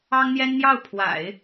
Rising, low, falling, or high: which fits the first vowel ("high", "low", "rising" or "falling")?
high